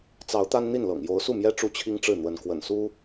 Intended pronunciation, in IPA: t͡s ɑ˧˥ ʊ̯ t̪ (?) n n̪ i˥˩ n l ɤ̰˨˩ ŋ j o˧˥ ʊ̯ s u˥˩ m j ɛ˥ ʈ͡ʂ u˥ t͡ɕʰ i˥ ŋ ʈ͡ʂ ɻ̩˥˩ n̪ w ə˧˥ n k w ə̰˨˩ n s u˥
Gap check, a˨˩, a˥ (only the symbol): a˥